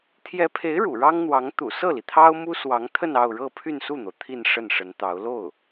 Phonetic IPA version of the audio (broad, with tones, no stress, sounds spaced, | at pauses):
t̪ʰ j ɛ˧˥ pʰ e˧˥ ɪ̯ ɻ ṵ˨˩ ɻ ɑ˥ ŋ n̪ w ɑ˧˥ ŋ t̪ ṵ˨˩ s ɤ˥˩ l i˩ t̪ʰ ɑ˥ ʊ̯ m u˥ s w ɑ˧˥ ŋ t̪ʰ ə˥˧ n ɑ˥˧ ʊ̯ ɻ ɤ˥˧ pʰ y˥˧ n s u˥˩ n̪ o˩ ʊ̯ t̪ʰ i˥˧ n ʂ ə˥˩ n ʂ ə˧˥ n t̪ ɑ˧˥ ʊ̯ l o˥˩ ʊ̯